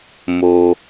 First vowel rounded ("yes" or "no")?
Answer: yes